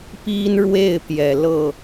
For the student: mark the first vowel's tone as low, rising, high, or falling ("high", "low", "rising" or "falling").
high